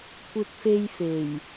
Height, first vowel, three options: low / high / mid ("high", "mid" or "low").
high